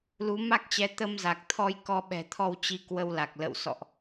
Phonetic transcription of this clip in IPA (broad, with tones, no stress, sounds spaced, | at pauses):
l u˨˦ m a˦˥ k̚ t͡ɕ ɛ˨˦ t̪ ə˧ m z a˨˩ k̚ t̪ʰ ɔ˧ j k ɔ˧ ɓ ɛ̤˨˩ t̪ʰ ɔ˧ w t͡ɕ i˧ k w ə˧ w l a˨˩ k̚ l ə̰˧˨ w s ɔ̰˧˨ ʔ